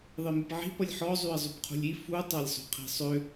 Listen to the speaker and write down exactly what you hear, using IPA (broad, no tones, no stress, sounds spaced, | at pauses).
ðˤ e m i p ʕ i̤ p ʌ lʲ ħ ɔ zˤ y ə̯ zˤ y p qʰ ṳ lʲ i f u tˤ a lʲ sˤ ṳ qʰ i̤ sˤ ø